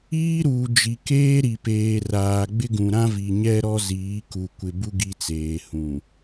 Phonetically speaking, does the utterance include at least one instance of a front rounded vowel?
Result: no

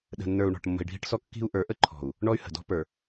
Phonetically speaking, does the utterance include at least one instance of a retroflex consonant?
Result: yes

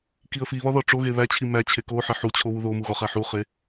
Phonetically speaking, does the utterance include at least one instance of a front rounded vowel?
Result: no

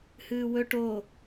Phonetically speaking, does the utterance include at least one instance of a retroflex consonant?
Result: yes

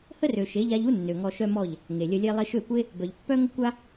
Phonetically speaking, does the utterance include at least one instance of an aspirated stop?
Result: no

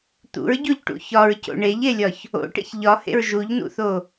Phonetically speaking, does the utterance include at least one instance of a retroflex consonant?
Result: yes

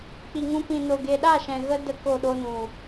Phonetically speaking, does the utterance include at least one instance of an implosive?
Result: yes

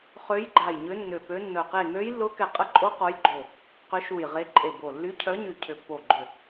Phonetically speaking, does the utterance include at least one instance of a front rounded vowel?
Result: yes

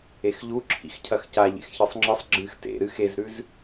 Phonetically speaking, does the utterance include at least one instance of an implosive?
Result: no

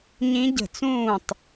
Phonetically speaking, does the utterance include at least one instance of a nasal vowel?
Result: yes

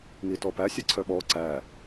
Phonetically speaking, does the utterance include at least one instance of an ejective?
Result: no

